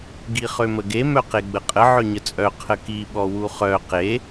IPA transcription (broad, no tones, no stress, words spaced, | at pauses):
ɡiχøməɡe mœqeɡ͡bəqʼə ʕœɲət͡sʼœ qʰəki ɓɔwuχœ qe